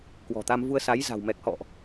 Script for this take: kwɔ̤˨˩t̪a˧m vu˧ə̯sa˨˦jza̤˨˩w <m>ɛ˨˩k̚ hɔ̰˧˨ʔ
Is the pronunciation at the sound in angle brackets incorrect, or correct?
correct